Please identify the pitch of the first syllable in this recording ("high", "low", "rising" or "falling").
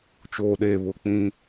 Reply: low